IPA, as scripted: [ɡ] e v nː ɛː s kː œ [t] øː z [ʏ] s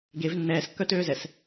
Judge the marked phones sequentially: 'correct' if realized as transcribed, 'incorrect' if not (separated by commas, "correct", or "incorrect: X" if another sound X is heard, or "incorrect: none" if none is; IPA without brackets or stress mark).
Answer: correct, correct, incorrect: ɛ